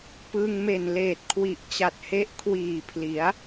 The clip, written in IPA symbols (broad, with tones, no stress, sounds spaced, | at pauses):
p ɯ˧ ŋ m e˨˩ n l eː˨˩ t̚ kʰ w i˨˩ ʔ t͡ɕ a˨˩ t̚ h e˦˥ ʔ kʰ w iː˨˩ pʰ l i˩˦ a̯